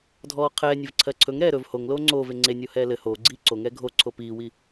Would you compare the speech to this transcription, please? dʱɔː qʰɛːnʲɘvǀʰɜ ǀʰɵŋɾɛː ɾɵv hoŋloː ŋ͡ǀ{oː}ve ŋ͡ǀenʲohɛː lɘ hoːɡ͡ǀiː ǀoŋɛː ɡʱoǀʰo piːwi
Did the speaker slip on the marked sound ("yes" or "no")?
no